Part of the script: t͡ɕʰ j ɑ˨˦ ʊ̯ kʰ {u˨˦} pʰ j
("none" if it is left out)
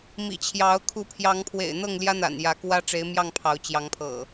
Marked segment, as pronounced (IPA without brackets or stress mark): u˨˦